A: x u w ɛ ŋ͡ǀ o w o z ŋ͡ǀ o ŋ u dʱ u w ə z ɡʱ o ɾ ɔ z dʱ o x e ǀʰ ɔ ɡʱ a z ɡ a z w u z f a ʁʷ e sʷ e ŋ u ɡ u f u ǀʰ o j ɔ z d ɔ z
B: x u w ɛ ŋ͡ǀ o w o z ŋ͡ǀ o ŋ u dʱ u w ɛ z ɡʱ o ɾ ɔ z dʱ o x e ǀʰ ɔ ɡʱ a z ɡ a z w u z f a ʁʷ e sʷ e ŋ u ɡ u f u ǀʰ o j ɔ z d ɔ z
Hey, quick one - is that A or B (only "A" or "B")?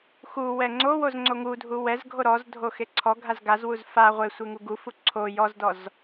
B